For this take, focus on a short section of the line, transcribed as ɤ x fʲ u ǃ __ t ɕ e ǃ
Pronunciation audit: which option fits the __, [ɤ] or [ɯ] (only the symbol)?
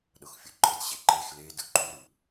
ɤ